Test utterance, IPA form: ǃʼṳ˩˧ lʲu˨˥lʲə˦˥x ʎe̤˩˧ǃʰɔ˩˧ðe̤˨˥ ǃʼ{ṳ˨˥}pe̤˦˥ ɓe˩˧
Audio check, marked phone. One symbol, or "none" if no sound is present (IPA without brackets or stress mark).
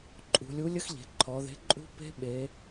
ṳ˦˥